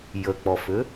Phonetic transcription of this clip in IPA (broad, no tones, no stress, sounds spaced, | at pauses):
j ə k͡p ɔ f ʏ